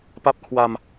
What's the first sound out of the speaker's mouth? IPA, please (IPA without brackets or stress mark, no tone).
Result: p